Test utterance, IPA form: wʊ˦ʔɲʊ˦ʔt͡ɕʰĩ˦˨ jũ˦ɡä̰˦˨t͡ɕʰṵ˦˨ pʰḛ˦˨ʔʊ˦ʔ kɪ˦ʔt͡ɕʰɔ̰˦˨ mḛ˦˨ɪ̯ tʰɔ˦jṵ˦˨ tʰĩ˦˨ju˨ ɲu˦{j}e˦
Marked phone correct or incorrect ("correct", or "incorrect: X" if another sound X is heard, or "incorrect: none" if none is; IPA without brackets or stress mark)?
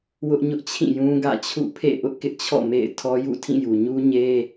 incorrect: ɲ